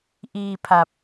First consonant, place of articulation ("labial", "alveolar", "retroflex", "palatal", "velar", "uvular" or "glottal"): glottal